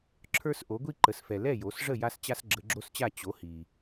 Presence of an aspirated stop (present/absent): present